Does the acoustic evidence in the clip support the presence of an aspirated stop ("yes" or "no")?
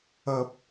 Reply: no